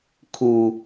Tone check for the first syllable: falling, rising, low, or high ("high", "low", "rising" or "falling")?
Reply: low